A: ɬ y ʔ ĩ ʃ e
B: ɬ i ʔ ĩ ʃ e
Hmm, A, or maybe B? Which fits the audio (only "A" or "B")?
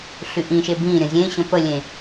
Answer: A